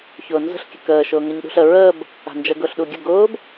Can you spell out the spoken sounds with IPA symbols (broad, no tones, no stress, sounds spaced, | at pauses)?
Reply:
ç ʊː n z ə̤ ɬ kʲ ə k əː ʃ ʊː ŋ ɤ ɲ ɗ ṳ ɬ ə ɹ əː b | a̤ n d͡ʒ ə ɡ ʊː ɬ ɗ u ɡʲ ʊ ɡ ʊː b